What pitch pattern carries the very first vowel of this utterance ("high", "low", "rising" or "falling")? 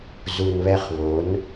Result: low